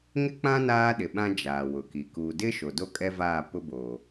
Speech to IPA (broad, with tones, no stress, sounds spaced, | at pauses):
ŋ ɪ˦ k͡p ã˦ n aː˦ ɗ ɪ˨ ɓ ã˦ d͡ʒ aː˨ w ʊ˨ k i˨ k uː˨ d ɪ˦ ʃ o˨ d o˦ kʼ ɛ˦ v aː˦˨ p ʊ˦ b oː˨